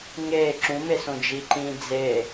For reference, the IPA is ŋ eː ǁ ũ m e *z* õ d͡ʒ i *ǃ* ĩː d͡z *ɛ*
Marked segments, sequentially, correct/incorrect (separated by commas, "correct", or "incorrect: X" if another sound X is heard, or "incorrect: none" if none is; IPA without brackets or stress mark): incorrect: s, correct, incorrect: e